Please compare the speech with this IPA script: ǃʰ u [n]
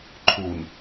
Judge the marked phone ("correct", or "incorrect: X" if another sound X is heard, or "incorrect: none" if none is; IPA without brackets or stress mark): correct